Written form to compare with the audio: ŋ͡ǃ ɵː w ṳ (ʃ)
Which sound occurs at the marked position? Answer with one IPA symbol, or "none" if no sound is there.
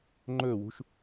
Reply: ʃ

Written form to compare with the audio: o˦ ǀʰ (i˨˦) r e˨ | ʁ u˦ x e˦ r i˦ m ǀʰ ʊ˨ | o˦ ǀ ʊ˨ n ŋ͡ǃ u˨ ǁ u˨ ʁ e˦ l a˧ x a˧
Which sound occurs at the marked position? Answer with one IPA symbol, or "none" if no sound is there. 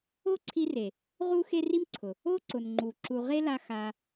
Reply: i˧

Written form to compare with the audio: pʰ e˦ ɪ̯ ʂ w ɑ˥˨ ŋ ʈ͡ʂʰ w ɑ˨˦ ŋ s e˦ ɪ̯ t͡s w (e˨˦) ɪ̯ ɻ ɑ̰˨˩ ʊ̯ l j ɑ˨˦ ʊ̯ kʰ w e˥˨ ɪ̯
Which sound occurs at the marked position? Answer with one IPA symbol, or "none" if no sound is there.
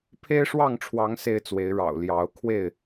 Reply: e˨˦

